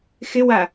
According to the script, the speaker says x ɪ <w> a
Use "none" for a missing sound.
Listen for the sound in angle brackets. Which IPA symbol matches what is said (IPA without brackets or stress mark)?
w